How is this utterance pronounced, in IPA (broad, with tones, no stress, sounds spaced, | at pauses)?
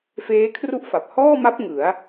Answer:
f eː˦˥ kʰ r u˥˩ ʔ f a˨˩ p̚ h ɔː˥˩ m a˦˥ p̚ ŋ ɯ˩˦ a̯